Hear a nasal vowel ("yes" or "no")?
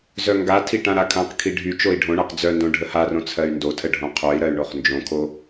yes